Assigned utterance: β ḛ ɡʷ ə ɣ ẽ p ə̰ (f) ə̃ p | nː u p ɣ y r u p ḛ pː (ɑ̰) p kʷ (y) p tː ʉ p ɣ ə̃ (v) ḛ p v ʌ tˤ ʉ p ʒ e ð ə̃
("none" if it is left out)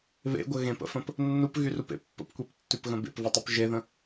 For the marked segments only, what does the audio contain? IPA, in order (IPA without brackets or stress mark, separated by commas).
f, ə̰, e, b